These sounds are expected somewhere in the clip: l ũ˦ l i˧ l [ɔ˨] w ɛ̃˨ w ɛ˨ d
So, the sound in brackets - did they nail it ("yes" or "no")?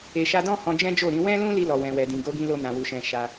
yes